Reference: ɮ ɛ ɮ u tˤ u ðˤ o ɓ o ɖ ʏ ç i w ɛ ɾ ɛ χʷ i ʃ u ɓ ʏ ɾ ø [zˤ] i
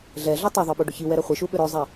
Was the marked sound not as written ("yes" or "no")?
no